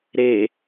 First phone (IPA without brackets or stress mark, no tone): ɾ